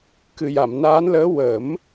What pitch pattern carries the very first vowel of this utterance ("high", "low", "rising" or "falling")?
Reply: low